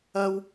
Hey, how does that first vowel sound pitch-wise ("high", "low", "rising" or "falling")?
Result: high